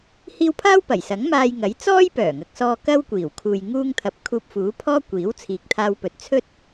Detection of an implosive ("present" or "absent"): absent